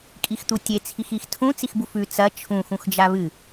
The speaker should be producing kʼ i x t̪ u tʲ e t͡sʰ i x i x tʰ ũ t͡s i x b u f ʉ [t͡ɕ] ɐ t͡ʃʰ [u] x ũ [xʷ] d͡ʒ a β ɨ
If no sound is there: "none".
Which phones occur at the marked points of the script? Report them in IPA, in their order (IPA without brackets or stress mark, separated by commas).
t͡s, ũ, x